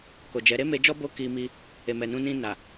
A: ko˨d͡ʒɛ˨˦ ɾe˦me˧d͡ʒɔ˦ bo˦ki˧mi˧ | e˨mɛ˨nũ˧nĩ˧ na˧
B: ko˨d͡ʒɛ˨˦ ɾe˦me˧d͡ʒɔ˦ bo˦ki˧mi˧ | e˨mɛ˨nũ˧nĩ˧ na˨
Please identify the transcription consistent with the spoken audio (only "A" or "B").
B